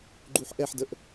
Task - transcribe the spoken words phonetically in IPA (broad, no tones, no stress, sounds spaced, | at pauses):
ɡ͡ǃ u ħ ʔ ɛ ħ d ə ʔ